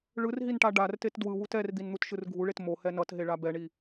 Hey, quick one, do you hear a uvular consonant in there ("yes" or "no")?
no